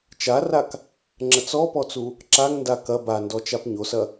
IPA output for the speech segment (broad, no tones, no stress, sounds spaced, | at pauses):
t͡ʃ a r a k | ŋ͡ǁ ə t͡s ɔ p ɔ t͡s u | ǁ a ŋ n d a k ɐ b a n d ɔ t͡ʃ a p ɲ o s ɐ